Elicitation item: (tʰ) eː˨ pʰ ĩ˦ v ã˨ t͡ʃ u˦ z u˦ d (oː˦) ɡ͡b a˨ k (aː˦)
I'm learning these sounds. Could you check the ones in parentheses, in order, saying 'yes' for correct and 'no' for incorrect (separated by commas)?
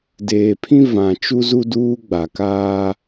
no, no, yes